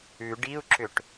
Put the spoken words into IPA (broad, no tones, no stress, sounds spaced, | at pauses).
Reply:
ʉ ɖ i u̯ ǁ ʏ ʈ